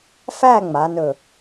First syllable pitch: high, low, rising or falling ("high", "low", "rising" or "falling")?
falling